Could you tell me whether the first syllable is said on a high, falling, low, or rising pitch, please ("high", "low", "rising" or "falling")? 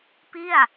falling